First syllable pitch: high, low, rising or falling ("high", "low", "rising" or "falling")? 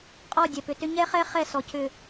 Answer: falling